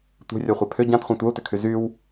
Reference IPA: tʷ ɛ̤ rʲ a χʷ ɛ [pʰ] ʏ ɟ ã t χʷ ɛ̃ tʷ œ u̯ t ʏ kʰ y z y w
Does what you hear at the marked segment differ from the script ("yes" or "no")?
no